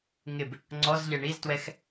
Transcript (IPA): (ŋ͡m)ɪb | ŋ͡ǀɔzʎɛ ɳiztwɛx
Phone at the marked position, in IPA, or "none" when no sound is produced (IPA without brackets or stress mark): ŋ